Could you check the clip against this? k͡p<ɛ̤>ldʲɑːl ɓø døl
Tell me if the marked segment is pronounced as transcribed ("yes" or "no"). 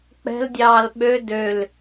yes